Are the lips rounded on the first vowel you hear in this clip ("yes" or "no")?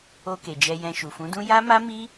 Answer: yes